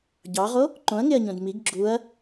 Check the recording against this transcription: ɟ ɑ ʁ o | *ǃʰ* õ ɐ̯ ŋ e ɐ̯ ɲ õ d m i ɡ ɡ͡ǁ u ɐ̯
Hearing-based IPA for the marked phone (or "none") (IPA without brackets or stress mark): ǃ